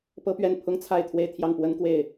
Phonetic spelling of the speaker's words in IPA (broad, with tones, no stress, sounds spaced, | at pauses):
p ɤ˥ p ɥ ɛ˥˩ n pʰ ʊ˥ ŋ t͡sʰ a˥˧ ɪ̯ t̪ʰ w e˥˧ ɪ̯ t̪ʰ j ɑ˥˩ ŋ p w ə˥ n k w e˥˩ ɪ̯